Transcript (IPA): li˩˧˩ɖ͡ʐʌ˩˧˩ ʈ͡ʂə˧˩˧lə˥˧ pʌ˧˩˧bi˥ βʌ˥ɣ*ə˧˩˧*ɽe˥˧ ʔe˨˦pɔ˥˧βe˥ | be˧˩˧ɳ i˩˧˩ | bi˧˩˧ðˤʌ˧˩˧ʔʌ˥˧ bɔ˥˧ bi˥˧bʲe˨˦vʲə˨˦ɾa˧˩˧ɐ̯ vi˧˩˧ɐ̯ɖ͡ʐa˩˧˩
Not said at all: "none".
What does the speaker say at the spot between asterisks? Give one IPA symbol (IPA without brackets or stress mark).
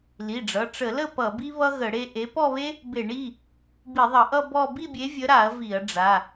ə˧˩˧